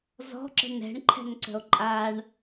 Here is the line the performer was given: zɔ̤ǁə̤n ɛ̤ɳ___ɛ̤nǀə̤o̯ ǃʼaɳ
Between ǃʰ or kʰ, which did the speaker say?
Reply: ǃʰ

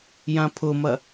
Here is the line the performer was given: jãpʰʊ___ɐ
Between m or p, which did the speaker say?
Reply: m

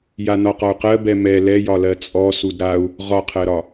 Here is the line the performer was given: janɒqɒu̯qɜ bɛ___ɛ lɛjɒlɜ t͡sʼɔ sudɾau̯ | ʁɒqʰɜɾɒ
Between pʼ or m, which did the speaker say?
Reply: m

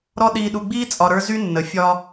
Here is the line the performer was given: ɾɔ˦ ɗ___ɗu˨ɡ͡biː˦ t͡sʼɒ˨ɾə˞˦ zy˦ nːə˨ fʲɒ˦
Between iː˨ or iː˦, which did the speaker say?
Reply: iː˨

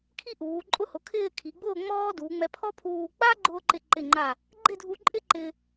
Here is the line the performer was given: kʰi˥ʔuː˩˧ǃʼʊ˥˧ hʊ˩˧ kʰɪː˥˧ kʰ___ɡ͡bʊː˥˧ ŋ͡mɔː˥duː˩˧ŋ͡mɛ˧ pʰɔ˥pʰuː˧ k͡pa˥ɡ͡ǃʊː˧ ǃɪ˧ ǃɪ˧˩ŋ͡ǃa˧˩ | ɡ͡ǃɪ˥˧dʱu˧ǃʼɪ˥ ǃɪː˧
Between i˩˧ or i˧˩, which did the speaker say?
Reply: i˩˧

